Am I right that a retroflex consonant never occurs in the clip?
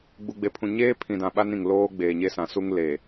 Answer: yes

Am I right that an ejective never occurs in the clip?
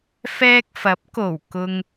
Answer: yes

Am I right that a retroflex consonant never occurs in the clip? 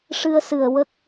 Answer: no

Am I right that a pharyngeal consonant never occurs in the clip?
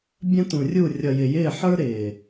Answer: no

